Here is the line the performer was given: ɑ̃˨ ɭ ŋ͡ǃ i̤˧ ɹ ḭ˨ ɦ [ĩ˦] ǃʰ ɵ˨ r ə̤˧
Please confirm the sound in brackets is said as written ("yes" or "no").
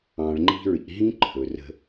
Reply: yes